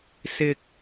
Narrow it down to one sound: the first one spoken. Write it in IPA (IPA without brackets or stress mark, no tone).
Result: s